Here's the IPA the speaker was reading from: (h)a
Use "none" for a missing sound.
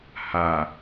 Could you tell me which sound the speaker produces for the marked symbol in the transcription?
h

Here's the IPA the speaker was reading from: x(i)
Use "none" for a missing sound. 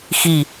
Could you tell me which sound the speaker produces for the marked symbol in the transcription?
i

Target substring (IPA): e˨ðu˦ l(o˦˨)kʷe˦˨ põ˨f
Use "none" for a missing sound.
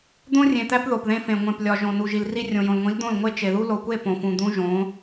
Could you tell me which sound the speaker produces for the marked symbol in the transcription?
o˨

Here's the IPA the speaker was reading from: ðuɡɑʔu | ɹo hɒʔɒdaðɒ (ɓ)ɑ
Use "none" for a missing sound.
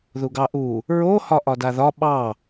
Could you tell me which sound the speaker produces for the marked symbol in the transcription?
ɓ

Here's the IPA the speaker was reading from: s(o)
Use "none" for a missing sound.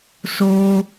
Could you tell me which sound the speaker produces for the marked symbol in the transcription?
o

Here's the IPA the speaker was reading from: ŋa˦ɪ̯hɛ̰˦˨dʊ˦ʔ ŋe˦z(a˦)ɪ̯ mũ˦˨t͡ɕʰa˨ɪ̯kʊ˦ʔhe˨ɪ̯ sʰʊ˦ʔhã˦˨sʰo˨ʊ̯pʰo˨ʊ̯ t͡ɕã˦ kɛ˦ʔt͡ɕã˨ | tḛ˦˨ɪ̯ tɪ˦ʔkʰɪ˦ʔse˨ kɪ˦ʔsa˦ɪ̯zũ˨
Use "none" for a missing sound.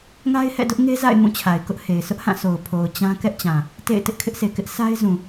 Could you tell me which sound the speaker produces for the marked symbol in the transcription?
a̰˦˨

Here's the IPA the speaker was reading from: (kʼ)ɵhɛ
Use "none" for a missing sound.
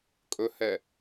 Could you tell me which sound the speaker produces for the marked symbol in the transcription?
kʼ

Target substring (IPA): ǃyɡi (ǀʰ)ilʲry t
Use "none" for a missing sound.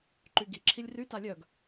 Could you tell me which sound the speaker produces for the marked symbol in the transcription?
ǁʰ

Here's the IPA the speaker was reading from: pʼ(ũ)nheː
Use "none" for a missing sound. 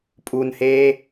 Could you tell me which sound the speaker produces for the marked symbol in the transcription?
u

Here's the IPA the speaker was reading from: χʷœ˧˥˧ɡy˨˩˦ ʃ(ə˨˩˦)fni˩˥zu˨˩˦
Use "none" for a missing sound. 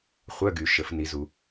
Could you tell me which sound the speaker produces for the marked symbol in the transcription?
ə˨˩˦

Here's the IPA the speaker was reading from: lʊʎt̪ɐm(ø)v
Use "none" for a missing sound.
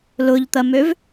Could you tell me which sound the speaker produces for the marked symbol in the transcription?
ø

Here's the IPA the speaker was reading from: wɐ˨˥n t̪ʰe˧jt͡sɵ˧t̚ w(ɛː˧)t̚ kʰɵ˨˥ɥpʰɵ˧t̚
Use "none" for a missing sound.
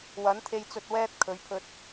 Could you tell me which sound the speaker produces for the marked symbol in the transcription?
ɛː˧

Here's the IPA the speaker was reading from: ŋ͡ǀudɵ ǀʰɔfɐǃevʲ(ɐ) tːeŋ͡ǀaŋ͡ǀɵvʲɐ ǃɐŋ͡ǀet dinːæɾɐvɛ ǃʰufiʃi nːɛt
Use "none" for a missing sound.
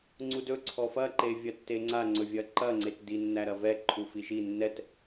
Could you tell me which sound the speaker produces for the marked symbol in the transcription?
ɐ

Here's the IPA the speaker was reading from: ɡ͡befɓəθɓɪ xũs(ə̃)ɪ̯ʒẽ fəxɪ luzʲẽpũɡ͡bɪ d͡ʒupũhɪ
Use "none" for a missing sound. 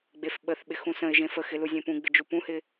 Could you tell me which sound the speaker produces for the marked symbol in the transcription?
ə̃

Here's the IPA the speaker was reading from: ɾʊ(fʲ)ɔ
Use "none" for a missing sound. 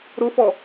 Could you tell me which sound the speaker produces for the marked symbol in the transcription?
f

